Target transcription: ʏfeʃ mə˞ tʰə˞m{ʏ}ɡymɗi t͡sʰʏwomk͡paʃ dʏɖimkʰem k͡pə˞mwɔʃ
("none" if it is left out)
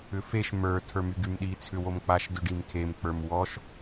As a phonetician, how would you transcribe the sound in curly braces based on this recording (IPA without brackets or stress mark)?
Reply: y